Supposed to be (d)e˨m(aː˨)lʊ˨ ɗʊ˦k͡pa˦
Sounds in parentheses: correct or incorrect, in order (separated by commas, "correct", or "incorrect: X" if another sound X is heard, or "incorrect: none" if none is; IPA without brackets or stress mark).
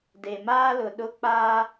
correct, incorrect: aː˦